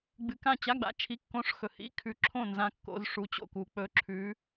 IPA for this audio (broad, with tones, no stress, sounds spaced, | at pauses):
ɡ͡b ɨ˨ k ã˦˨ t͡ɕ a˧˥˧ ɡ͡b a̰˨ t͡ʃʰ i˧˥˧ kː õ˧˥˧ ʂ x ɵ˨ h ḭ˧˥˧ kʰ ʉ˨˦ ǁʰ õ˦˨ n z ã˨ kː o̰˨ z ʂ u˨˦ t͡ɕ o̰˦˨ k u˨ k͡p ɵ˨˦ ǁʰ ʉ˨˦